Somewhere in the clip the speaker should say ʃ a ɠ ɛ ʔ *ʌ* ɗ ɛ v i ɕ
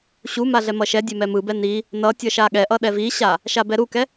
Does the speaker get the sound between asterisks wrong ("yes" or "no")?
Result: no